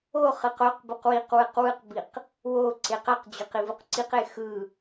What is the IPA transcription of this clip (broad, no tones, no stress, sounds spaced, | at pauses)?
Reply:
o χ ɯ q o q b u q w i q w ɯ q w ɯ q b i q | w o ǀ e q a q d͡ʑ o q i v u q ǀ i q e x ɯ